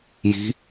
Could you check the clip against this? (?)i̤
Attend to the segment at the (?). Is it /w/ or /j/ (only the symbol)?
j